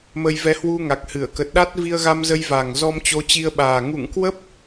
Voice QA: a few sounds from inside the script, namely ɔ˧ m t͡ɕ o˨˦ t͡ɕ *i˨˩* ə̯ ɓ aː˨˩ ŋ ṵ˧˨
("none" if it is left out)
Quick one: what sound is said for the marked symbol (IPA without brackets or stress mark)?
i˧